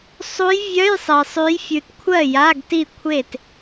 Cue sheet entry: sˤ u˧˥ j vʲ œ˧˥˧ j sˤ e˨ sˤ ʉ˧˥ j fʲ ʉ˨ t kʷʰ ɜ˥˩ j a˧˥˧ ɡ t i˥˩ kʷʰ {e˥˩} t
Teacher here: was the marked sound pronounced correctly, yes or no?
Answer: yes